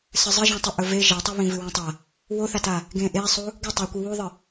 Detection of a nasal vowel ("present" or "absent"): present